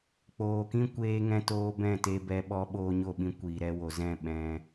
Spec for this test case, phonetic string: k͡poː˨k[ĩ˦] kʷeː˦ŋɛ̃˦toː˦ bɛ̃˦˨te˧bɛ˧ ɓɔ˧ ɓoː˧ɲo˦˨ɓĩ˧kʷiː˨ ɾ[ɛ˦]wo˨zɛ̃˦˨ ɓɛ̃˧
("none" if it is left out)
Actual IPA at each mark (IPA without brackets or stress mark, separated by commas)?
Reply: ĩ˧, ɛ˧